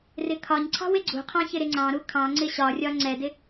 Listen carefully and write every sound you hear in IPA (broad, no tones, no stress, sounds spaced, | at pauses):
r ɪ kʰ ɒ ɲ ǀʰ ɑ̤ w ɪ ɡ͡ǀ ṳ qʰ ɑ̃ ç ɪ ɾ ɪ ŋ͡ǀ ɑ̃ ɾ u kʰ ɑ̃ ŋ͡ǀ ɪ ɕ ɒ rʲ ɒ ŋ͡ǀ ɛ d ɪ